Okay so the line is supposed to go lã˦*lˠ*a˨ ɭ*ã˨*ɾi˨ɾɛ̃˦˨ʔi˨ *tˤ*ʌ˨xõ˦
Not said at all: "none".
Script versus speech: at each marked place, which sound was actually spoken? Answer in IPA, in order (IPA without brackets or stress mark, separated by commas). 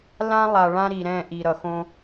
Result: lˠ, ã˦, ɾ